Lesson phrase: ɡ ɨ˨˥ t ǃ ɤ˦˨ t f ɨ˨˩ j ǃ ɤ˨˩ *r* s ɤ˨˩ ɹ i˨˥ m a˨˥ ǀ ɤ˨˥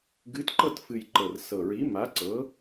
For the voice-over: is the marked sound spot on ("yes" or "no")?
yes